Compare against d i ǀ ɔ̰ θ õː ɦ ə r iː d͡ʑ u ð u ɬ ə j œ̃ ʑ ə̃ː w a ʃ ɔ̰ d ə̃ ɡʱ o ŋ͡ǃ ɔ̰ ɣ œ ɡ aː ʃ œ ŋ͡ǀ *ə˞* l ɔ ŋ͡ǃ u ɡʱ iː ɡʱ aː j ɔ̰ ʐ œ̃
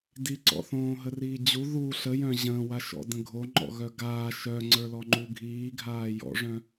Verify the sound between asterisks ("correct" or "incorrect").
correct